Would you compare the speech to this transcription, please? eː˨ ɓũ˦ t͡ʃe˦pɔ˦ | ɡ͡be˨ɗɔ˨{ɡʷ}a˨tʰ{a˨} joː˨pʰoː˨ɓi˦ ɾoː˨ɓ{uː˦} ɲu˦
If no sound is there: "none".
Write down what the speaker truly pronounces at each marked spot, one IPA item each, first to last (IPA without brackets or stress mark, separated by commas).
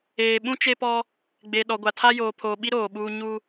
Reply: ɡʷ, a˦, uː˦